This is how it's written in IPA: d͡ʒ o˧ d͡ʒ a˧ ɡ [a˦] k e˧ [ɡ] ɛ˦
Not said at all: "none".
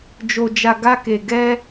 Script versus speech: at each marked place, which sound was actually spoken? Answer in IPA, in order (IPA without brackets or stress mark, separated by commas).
a˦, ɡ